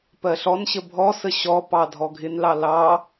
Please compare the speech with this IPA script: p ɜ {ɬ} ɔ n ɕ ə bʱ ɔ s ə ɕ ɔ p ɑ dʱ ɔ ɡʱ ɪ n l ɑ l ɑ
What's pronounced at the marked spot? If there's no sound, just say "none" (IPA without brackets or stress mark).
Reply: ɬ